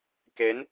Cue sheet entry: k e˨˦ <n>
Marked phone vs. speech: correct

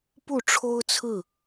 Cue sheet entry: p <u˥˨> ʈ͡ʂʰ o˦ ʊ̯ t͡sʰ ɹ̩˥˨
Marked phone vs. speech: correct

